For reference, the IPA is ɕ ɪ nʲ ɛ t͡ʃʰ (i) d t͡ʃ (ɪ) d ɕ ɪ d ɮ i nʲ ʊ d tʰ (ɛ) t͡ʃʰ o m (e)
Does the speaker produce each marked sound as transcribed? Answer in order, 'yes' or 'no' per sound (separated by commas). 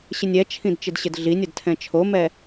no, yes, no, no